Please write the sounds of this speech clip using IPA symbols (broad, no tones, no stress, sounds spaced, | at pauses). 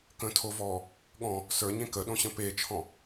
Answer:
k ə̃ tʰ o v ɔː | ɠ ɔ̃ | s ə˞ ɲ ẽ k ə ɗ õ ɕ ə̃ p e t͡ʃʰ ɔ̃